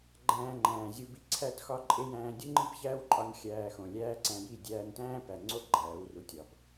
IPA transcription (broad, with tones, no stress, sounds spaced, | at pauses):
ɡ͡ǃ æ̃ː˧ ŋ͡ǃ æ̃ː˨ zʲ u˧ b i˧ ǀʰ æ˦ t x ɒ˦ ǃʼ e˦ j æ̃ː˦ dʲ u˦ ŋ͡ǃ i˦ b ç æː˦ w ǃʼ ɒ˧ n xʲ æː˧ x õ˨ lʲ æː˦ ǀ æ̃˧ j i˦˨ dʲ æː˧ n t æ̃ː˦ p æ˨ ŋ͡ǀ o˦˨ ɡ͡ǃ æː˨˦ w r u˧ tʲ ɒ˨ b